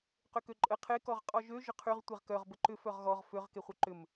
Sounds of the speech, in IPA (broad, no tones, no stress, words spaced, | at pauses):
qʏkøǃʼə qʰe kɔʁqʼɔʒø ʒʊqʰyʁ tʷeʁkœʁ bəǃʏ fœʁɣɔʁ føʁ keχʷœǃʏm